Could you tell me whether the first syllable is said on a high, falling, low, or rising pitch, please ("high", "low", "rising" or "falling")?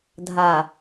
low